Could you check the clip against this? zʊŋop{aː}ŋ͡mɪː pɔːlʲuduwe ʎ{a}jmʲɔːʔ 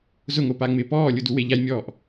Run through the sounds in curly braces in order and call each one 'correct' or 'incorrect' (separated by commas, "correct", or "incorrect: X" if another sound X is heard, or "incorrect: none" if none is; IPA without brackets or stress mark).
incorrect: a, correct